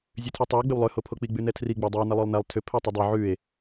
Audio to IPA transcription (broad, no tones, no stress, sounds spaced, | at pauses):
zʲ ʉ tʰ i tˤ ʉ o̯ ɡ͡b ʏ w lˠ ø h o pʰ o k͡p i ɡ͡b ʉ n ɛ tʰ r i ɡ͡b æ dˤ ø w n ɛ lˠ ø lˠ n æ lˠ tʰ ʏ pʰ ɛ tˤ ʏ dˤ ø ʕ ʉ e̯